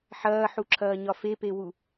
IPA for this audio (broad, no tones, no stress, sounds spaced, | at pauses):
ħ ɐː ħ u ǁʰ ɐː ɲ ɒ f e p e w u